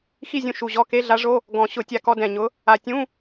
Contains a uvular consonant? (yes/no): no